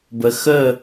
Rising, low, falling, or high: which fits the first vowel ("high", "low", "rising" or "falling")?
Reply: low